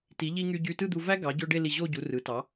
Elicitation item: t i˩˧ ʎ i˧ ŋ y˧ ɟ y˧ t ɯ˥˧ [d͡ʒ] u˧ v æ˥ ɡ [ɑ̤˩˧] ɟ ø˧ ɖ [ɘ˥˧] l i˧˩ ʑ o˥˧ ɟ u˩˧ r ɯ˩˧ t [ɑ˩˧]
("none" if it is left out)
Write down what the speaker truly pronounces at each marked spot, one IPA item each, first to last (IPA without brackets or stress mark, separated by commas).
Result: d̪, ɑ˩˧, e˥˧, ɑ˩˧